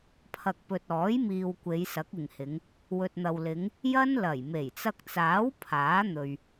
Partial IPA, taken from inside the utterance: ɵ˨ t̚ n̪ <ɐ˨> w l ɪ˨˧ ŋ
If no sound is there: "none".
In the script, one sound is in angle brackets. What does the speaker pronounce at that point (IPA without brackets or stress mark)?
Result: ɐ˨